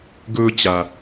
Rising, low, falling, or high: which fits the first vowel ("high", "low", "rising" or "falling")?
high